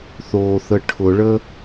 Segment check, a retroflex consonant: present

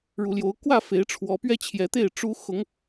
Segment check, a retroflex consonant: present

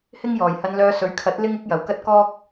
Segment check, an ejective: absent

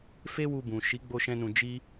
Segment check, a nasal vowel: present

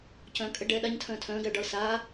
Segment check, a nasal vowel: present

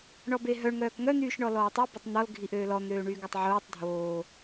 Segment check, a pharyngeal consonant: present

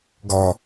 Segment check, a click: absent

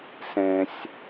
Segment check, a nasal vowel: present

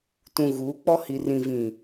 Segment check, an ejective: absent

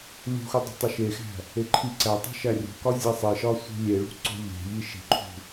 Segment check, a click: present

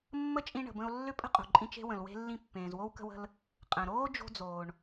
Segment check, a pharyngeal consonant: absent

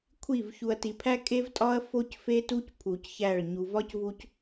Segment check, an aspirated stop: present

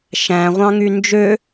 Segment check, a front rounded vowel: present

